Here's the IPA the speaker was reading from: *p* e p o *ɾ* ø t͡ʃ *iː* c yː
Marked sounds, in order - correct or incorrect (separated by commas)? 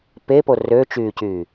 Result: correct, incorrect, incorrect